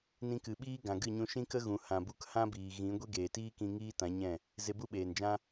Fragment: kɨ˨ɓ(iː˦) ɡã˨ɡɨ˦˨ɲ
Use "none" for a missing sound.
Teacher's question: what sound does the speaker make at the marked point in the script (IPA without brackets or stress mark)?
iː˦